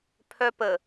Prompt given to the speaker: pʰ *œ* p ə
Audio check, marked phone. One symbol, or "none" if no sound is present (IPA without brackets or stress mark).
œ